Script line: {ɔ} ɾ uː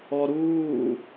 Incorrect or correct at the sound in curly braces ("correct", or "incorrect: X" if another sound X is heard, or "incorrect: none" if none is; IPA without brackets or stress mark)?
correct